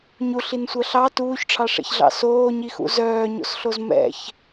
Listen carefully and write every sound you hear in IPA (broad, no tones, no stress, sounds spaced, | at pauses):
ɲ u ɬ i n sʷ ɜ ɬ ɑ t uː ç ʈ͡ʂʰ ɑ ʂ ɛ̰ ç ɮ ɑ̰ s oː ɲ i x ṵ z œː ɲ o̰ s ɬ o z m ɛ̰ ç